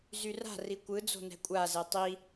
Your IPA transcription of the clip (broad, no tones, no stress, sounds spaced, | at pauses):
z y r a̤ r i kʷ ɯ d͡z o̤ n ɛ̤ kʷʼ a z ɛ tˤ i